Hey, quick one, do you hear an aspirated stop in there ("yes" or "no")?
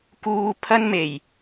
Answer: yes